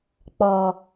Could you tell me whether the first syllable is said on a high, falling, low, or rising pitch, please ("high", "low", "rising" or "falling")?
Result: low